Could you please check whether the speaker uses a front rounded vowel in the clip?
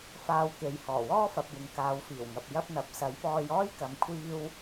no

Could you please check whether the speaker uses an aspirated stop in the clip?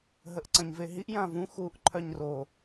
yes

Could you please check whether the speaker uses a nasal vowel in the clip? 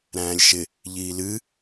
yes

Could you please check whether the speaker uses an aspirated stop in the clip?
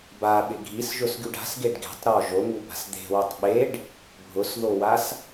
no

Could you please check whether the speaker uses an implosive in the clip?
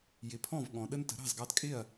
yes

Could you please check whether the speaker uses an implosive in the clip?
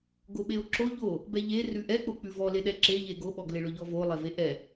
yes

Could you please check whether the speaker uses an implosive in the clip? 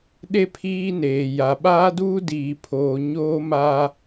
yes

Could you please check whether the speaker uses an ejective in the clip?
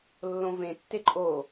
yes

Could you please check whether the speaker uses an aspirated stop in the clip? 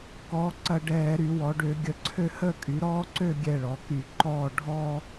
yes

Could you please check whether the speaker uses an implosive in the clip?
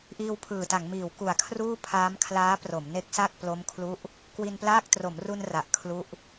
no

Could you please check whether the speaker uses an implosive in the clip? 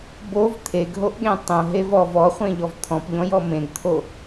yes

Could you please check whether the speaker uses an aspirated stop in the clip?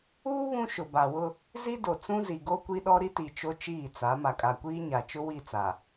no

